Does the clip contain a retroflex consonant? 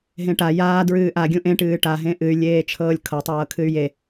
yes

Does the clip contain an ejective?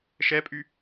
yes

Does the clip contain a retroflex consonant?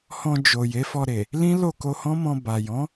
no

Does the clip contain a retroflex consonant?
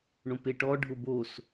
yes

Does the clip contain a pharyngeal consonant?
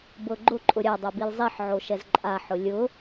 yes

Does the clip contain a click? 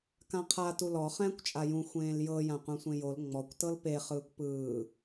no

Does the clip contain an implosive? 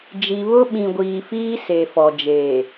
yes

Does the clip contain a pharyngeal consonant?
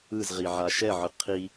yes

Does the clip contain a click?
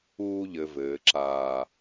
yes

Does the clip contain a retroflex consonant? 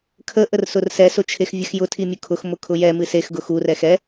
no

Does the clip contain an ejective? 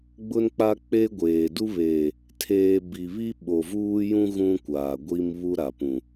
no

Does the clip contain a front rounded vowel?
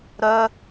yes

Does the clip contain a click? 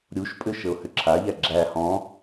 yes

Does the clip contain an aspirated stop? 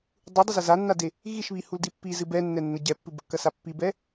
no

